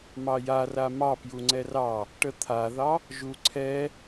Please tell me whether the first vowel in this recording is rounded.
no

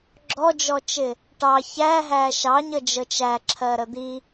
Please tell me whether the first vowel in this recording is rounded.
yes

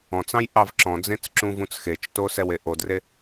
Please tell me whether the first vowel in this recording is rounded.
yes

